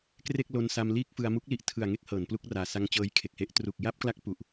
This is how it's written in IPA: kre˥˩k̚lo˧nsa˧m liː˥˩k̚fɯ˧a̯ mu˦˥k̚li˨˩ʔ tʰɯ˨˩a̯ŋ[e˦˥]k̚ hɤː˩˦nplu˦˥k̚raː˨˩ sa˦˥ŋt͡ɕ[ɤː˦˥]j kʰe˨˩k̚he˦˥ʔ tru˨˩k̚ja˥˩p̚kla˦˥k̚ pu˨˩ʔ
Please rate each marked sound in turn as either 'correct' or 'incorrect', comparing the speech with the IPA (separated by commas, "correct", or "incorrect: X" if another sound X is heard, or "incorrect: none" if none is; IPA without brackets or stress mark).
correct, correct